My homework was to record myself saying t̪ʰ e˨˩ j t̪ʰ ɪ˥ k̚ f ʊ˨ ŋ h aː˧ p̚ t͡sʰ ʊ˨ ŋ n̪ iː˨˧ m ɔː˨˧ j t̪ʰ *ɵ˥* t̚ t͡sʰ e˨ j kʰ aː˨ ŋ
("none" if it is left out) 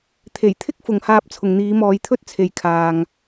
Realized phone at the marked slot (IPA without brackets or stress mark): ɵ˥